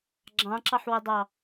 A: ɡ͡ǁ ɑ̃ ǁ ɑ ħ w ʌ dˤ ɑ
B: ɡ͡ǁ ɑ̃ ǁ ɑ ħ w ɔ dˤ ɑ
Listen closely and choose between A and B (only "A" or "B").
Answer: A